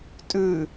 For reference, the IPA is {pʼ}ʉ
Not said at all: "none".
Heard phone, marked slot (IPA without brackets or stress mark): tʼ